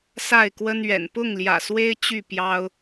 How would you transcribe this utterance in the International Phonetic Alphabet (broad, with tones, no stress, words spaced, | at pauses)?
sa˥˨ɪ̯kwə˦nɥɛ̰˨˩n pʊ˥˨ŋljä̰˨˩swe˦ɪ̯ t͡ɕy˥˨pjɑ˦ʊ̯